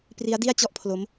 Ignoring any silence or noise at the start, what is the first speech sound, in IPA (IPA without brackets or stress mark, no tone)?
p